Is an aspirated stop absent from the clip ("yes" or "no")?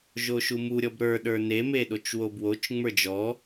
yes